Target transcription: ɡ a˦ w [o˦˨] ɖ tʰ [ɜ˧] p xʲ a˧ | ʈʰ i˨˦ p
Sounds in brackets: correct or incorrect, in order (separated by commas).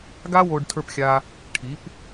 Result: incorrect, incorrect